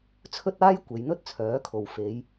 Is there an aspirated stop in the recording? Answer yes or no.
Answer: yes